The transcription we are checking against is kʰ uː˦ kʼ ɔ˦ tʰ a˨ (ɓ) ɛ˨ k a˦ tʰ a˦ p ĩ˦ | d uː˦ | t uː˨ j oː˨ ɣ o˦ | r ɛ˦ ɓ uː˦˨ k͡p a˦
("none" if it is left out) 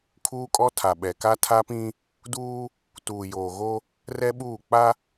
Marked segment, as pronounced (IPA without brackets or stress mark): ɓ